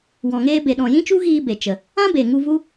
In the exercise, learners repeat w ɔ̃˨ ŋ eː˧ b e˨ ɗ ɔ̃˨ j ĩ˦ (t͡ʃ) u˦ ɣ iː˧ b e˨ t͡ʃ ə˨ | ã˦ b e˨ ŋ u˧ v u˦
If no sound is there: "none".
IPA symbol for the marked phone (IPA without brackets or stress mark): t͡ʃ